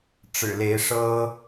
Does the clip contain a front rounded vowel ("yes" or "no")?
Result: no